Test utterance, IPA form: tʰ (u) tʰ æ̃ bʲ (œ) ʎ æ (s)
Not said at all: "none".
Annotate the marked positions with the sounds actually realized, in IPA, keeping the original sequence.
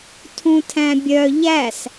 ũ, œ, s

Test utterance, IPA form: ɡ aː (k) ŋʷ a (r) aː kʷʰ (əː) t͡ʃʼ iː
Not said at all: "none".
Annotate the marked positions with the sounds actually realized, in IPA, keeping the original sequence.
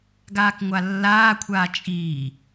k, lː, aː

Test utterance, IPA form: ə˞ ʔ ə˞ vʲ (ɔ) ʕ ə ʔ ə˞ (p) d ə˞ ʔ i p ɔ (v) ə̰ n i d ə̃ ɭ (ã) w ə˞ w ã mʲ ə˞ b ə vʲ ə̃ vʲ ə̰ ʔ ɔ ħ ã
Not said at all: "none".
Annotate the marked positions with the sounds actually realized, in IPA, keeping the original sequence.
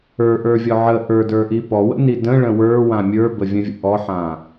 ɔ, none, w, ə̃

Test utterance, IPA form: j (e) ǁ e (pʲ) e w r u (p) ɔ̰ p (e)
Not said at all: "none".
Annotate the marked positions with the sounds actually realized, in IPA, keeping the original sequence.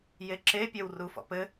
e, pʲ, f, ɘ

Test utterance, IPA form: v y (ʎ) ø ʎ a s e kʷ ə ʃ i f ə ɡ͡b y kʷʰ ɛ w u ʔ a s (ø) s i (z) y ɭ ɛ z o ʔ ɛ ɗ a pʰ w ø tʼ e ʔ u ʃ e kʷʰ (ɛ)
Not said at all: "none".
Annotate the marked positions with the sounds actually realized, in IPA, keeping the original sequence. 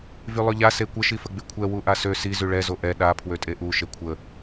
lˠ, ø, z, ə

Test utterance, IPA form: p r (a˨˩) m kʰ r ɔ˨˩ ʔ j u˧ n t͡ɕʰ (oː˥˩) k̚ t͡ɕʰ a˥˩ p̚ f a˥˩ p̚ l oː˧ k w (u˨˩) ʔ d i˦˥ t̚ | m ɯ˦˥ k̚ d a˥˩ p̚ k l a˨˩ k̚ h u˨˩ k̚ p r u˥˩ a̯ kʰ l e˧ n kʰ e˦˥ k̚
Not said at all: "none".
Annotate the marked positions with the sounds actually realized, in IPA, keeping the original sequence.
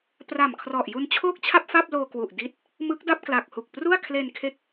a˨˩, oː˥˩, u˨˩

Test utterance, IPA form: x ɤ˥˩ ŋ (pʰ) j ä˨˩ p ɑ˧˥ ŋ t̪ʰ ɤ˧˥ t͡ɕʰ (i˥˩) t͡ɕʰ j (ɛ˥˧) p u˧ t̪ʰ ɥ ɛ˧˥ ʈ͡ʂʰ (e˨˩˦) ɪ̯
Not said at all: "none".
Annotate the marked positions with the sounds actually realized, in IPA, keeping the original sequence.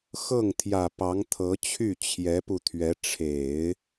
t̪ʰ, y˥˩, ɛ˧˥, e˨˩˦

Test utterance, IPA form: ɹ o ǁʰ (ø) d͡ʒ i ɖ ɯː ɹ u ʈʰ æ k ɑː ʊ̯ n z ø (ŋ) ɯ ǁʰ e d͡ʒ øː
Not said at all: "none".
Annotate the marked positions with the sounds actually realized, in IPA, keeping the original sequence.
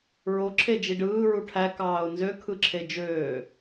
e, kʰ

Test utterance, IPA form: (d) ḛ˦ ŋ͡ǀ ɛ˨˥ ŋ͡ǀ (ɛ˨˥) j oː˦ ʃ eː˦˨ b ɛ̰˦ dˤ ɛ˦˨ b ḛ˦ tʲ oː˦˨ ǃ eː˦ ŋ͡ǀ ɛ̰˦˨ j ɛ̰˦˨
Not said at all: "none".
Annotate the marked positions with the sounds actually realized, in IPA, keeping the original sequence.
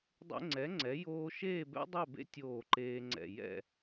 dˤ, ɛ˨˥

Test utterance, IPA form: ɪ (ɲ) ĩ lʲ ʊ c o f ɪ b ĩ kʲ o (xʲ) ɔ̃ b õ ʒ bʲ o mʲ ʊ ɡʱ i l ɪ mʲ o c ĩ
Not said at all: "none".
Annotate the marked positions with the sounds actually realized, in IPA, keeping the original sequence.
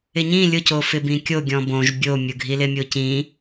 ɲ, ɡʲ

